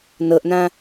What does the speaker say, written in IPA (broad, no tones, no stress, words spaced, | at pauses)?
nɤʔnã